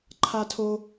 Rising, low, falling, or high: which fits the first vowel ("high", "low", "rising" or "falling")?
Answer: high